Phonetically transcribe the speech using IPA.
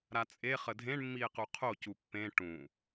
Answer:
ɾ a t͡sʼ e χ ə dʱ ẽ ɳ mː i e̯ q u qʰ o c u pː ẽ ʈ ũ

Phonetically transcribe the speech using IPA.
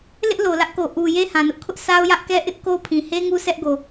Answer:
l ɪ˦ ʔ l o˨ l ä˦ ʔ k o˨ ʔ u˨ j e˦ h ã˨ n ʊ˦ ʔ kʰ ʊ˦ ʔ s a˦ ʊ̯ j ä˦ ʔ k ɛ˦ ʔ ɪ˦ ʔ k o˦ pʰ ĩ˨ h e˦ ŋ u˦ s ɛ˦ ʔ ɡ o˨

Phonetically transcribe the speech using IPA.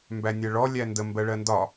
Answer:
m b æ nʲ ɜ ɭ ɔ lʲ æ n d ə m b ɜ ɭ ɜ n d ɒ

